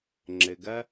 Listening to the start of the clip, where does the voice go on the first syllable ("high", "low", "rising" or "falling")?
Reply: low